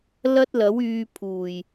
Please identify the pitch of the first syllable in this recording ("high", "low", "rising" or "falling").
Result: high